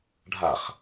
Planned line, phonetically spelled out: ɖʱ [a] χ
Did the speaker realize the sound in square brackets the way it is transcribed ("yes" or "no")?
yes